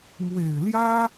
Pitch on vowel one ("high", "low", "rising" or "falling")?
low